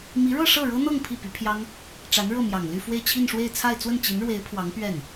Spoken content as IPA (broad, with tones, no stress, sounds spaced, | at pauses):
m i˧˥ ɻ ɤ˥˧ ʂ ɤ˥˩ ɻ ɤ˥ n̪ ɤ˥˧ ŋ pʰ i˥˩ p y˧˥ pʰ j ɑ˥ ŋ | ʈ͡ʂ a˧˥ n ɻ ɤ˥˩ m j ɑ˨˩ ŋ l y˥˧ f w e˥˧ ɪ̯ t͡ɕʰ i˥˧ n ʂ w e˥˧ ɪ̯ t͡sʰ a˥˧ ɪ̯ t͡s w ə˥˩ n t͡ɕ i˧˥ n ɻ w e˧˥ ɪ̯ pʰ w ɑ˧˥ ŋ p ɥ ɛ˥˩ n